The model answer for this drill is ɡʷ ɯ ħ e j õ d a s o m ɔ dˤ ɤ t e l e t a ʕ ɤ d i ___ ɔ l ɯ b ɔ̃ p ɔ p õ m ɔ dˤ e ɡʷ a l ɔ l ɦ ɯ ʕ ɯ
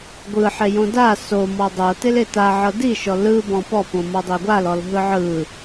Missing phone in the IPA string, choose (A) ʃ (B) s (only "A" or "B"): A